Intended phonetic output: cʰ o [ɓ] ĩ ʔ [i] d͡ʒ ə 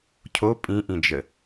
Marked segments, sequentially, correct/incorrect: incorrect, incorrect

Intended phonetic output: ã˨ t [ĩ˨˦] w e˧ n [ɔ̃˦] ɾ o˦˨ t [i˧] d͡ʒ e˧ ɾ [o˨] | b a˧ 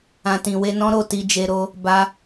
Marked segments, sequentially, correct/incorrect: incorrect, correct, correct, incorrect

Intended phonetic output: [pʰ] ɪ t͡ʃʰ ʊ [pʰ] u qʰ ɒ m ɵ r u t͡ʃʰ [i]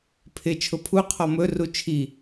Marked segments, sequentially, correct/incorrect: correct, correct, correct

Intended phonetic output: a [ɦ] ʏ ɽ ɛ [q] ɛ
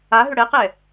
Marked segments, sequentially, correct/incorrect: correct, correct

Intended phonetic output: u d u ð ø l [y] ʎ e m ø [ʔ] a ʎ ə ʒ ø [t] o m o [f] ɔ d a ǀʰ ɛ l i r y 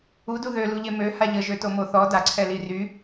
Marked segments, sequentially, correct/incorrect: incorrect, incorrect, correct, incorrect

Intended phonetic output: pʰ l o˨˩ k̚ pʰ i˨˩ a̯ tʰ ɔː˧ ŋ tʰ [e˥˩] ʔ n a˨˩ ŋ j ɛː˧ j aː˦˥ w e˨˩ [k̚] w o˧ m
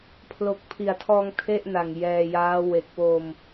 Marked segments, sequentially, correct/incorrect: correct, correct

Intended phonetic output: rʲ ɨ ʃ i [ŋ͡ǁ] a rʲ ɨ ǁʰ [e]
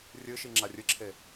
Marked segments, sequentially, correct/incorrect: correct, correct

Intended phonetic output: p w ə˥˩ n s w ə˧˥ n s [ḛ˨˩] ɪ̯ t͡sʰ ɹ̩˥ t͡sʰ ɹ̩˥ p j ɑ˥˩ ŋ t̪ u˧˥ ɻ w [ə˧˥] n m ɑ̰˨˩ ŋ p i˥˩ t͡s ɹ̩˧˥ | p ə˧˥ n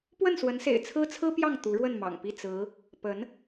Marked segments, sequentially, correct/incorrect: correct, incorrect

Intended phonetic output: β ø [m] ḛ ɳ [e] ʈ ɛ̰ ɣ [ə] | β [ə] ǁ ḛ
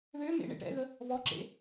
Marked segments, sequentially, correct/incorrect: correct, incorrect, correct, incorrect

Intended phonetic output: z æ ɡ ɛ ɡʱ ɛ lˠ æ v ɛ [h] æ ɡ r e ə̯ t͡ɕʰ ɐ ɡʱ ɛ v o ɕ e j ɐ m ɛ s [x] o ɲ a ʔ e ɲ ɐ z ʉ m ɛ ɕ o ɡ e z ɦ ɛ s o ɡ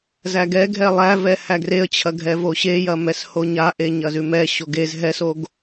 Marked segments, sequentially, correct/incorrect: correct, incorrect

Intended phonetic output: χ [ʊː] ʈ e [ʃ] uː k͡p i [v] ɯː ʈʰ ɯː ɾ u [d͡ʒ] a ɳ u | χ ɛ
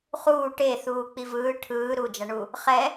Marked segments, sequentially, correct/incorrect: incorrect, incorrect, correct, correct

